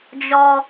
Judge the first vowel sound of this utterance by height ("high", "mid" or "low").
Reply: mid